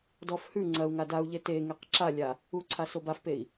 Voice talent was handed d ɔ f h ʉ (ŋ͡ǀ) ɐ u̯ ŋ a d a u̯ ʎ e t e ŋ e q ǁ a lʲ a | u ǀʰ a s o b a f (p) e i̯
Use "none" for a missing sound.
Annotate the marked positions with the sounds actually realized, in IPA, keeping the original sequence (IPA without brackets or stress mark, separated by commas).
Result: ŋ͡ǀ, p